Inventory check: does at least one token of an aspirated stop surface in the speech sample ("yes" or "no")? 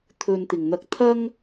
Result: yes